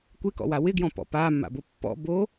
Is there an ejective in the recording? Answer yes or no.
no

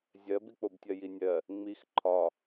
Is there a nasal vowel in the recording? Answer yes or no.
no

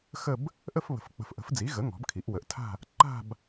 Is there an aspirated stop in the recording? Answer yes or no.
yes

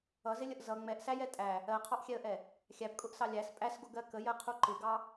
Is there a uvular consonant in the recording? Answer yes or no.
yes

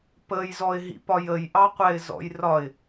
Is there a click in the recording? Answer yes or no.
no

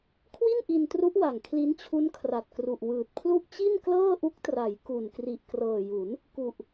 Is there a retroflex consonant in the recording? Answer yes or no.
no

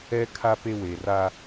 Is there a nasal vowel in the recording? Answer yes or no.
no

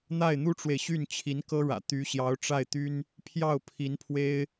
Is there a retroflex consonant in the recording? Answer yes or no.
yes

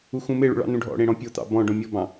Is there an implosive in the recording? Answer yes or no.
no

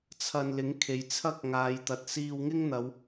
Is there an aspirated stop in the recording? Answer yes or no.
yes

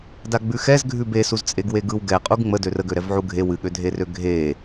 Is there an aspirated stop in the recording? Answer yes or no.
no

